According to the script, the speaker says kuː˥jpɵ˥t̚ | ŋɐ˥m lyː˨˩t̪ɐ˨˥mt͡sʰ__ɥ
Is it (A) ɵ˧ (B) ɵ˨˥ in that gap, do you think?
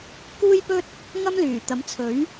B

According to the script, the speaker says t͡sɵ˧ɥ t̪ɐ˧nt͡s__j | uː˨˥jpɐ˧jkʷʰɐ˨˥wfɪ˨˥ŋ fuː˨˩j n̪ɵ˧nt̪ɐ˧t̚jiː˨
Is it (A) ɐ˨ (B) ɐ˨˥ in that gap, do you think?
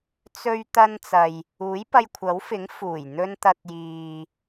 A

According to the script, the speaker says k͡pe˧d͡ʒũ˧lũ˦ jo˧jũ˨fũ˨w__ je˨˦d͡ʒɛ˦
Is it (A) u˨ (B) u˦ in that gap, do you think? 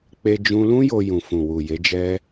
A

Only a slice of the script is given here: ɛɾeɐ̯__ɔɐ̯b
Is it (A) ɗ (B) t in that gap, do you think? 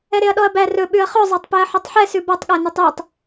A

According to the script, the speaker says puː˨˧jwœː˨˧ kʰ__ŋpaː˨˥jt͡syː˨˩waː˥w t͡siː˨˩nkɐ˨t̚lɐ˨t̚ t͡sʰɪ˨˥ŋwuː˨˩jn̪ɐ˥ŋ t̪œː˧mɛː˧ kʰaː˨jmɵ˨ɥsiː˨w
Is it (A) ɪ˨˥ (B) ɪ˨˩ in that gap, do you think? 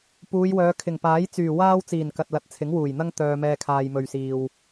B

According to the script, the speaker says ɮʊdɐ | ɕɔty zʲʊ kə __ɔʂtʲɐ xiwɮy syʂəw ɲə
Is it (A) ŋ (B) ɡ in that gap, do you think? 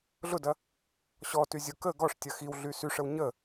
B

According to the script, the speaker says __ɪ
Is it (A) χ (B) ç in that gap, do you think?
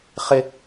A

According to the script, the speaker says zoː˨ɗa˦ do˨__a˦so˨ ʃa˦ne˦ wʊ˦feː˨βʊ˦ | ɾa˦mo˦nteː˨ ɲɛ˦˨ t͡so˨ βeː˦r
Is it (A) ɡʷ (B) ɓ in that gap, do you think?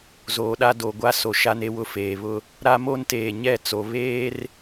A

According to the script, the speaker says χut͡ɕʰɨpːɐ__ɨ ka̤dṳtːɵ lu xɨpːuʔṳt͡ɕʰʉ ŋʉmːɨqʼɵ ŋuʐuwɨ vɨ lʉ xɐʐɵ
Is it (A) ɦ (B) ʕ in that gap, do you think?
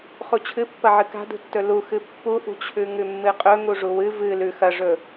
B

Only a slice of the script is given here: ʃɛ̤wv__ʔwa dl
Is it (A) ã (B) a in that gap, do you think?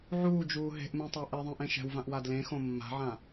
A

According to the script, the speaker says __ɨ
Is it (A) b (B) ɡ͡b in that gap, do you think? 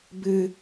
A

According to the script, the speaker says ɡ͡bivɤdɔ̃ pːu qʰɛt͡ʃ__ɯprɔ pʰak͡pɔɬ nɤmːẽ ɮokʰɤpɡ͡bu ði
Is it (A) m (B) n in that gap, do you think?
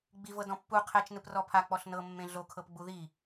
B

